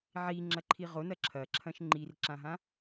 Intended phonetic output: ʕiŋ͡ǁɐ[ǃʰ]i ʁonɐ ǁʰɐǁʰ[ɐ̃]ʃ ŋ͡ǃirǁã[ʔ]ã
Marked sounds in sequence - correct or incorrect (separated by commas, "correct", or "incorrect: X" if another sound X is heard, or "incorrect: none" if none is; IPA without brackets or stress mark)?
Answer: correct, correct, incorrect: ɦ